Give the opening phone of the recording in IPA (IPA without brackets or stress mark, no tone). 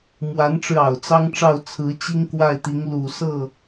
m